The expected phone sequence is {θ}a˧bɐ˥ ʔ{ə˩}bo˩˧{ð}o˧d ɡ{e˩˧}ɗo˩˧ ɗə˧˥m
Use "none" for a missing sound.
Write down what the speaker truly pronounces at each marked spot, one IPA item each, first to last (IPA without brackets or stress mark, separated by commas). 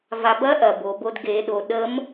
v, ɐ˩, b, e˩˧